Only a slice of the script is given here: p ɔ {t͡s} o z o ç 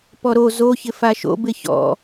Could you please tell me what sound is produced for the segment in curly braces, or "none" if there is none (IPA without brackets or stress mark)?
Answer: ɾ